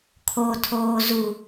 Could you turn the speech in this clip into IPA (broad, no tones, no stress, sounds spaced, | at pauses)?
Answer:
kʰ o tʰ oː z u